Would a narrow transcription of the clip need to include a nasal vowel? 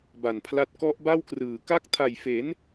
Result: no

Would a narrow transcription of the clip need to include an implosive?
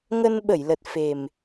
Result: yes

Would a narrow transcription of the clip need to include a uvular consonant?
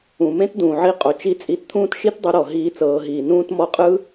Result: yes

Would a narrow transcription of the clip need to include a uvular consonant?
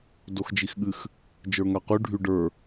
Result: yes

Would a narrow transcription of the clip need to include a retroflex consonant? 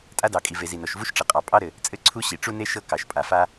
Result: yes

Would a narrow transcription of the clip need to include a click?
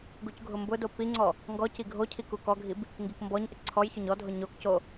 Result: yes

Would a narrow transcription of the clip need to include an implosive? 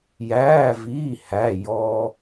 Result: no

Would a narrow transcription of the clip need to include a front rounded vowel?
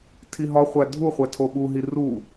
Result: no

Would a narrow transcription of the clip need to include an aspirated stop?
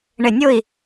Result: no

